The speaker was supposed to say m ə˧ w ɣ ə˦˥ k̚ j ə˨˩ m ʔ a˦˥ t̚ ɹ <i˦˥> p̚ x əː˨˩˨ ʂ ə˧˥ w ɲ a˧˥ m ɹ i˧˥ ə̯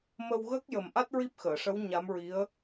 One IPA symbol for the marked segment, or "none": i˦˥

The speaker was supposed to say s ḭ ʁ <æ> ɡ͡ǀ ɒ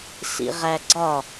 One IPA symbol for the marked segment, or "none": æ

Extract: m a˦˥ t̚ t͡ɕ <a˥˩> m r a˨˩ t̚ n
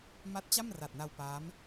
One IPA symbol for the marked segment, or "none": a˥˩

